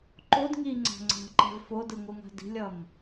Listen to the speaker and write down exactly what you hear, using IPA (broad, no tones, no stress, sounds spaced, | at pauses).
ǃ o d ŋ i ŋ͡ǀ a̤ ŋ͡ǀ a̤ ǃ ɛ̤ v f o d ɯ ŋʷ ɯ ŋ a̤ d i̤ lʲ ʌ m